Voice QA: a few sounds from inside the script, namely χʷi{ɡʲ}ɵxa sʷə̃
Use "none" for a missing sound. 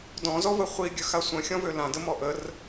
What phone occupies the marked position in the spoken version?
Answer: ɡʲ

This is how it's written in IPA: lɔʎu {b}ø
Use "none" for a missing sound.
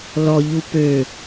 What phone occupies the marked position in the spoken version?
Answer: p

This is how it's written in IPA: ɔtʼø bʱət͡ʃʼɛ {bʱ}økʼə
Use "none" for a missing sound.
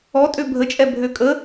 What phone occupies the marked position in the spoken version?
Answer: bʱ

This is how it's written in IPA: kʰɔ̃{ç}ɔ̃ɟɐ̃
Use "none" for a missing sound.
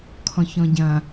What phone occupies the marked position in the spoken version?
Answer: ç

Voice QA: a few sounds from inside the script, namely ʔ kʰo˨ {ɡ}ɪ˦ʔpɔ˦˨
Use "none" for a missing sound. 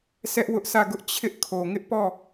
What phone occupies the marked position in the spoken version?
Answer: ŋ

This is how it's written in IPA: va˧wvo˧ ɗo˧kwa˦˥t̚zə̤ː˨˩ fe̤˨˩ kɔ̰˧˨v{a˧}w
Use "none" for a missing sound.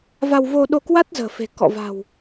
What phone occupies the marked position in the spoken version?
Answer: a̤˨˩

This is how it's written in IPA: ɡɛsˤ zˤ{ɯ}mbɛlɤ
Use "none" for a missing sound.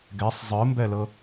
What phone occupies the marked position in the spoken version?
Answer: ɯ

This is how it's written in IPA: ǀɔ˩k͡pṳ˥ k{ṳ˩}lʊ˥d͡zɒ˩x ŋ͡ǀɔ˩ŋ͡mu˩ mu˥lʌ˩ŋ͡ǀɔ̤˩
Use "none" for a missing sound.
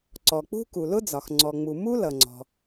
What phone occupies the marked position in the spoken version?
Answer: u˩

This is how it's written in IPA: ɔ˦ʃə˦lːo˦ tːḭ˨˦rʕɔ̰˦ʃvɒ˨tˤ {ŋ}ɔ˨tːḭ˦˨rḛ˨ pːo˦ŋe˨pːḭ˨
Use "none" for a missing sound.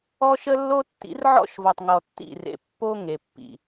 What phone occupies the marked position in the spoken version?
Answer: ŋ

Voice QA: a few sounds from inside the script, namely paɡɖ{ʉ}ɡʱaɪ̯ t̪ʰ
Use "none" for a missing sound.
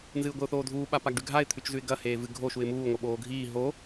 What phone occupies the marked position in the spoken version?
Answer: ʉ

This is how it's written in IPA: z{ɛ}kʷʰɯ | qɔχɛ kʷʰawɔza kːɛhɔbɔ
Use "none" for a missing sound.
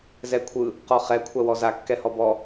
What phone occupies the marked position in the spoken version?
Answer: ɛ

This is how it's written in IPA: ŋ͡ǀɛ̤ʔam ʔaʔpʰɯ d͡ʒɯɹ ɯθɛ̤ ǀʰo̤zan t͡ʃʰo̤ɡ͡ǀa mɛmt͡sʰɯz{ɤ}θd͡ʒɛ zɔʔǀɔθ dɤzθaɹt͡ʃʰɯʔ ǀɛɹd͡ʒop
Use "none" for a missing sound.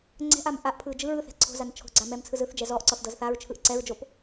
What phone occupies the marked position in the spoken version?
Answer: ɯ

